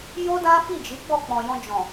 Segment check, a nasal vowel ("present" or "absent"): present